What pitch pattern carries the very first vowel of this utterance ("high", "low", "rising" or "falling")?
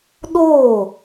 falling